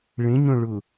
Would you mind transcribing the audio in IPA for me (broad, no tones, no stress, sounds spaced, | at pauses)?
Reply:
ɭ ẽ ɲ õ ɭ ʊ